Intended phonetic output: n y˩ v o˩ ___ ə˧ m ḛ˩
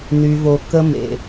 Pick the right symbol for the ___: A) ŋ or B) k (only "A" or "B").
B